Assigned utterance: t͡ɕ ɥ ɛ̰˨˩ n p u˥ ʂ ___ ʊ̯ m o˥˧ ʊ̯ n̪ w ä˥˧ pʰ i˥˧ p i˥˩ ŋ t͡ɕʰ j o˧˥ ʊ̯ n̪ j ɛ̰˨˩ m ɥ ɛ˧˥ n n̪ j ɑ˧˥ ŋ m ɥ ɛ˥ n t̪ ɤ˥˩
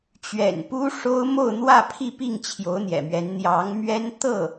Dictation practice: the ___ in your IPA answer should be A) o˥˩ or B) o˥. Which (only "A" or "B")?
B